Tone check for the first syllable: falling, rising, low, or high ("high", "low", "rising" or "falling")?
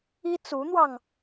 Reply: high